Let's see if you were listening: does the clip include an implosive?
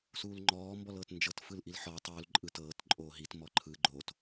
no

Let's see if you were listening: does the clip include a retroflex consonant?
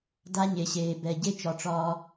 yes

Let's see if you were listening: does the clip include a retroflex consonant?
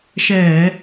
no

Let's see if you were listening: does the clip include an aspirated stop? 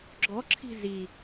yes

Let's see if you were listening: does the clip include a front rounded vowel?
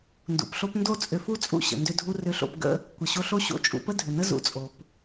yes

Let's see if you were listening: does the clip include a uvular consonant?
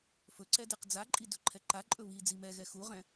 yes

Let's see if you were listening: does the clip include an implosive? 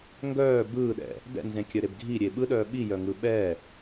yes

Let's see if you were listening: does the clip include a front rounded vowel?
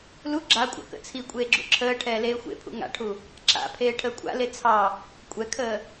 no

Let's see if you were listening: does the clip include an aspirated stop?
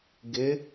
no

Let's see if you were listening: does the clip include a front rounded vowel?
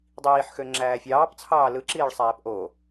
yes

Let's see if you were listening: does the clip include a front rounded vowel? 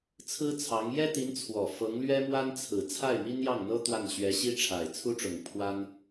no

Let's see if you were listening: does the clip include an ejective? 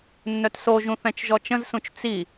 no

